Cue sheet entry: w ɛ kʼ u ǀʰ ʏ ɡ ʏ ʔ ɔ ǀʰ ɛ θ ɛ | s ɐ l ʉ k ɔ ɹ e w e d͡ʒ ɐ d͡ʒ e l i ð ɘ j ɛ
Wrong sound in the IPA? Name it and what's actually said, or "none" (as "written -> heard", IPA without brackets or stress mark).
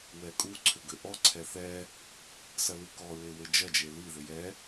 none